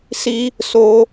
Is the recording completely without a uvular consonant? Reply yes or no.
yes